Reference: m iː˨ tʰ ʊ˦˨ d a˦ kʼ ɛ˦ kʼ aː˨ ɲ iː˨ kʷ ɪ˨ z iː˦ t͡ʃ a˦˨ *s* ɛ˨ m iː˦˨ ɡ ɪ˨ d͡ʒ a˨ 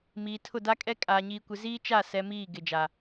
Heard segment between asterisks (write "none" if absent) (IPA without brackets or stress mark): s